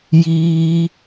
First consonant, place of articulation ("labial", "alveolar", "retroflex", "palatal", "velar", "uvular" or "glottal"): palatal